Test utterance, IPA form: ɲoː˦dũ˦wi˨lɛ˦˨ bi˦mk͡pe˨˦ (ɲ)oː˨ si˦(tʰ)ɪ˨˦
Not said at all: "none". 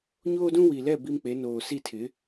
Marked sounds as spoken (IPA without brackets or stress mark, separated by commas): n, tʰ